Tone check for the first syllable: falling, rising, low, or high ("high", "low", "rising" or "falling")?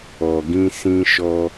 low